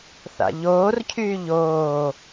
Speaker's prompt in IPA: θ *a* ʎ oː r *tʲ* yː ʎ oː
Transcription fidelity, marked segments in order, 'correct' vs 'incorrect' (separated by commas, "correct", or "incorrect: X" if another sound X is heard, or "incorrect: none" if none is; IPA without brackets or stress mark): incorrect: a̰, incorrect: cʰ